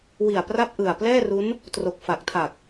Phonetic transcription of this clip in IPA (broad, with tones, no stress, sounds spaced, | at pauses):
w i˨˩ a̯ p r a˥˩ p̚ ʔ ɯ˨˩ a̯ p l ɛː˥˩ r u˦˥ n | t r o˨˩ k̚ f a˨˩ k̚ tʰ a˨˩ k̚